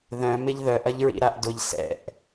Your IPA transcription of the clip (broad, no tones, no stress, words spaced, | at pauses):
ðœ̃ mɪʎðœʔ ɐʎɹḭɾaʔdʊʎ sɛ̰ʔ